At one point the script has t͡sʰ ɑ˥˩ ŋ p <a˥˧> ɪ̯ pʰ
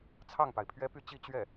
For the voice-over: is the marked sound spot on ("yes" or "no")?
no